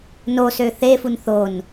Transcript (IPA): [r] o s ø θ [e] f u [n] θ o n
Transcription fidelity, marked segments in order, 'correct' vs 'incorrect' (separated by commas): incorrect, correct, correct